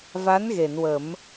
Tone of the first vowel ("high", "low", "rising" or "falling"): rising